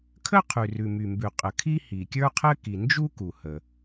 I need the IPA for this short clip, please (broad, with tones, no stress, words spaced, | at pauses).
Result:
kʰə˥qʰʉ˩rʉ˩ my˩mbʉ˩ qʼə˩kʰi˥ hi˩kʲə˞˥qʰɘ˥ ki˩ nd͡ʒu˥ ku˩hə˩